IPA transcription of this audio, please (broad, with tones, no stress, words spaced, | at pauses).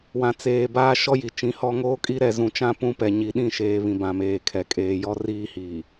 wã˨t͡seː˨ baː˦ʃɔ˦ji˨t͡ʃĩ˨˦ hɔ˦ ŋoː˦kʼi˦ɾɛ˨ zũ˨t͡ʃã˦pũ˦˨ pɛ˨ɲi˨ɗĩ˦˨ʃeː˨ βĩ˨bã˨meː˨kʰɛ˨ kʼeː˨jɔ˦ riː˦hiː˨